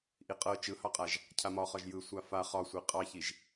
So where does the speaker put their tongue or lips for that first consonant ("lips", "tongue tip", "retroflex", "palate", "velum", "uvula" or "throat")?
throat